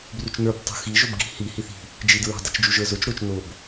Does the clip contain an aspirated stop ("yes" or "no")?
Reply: no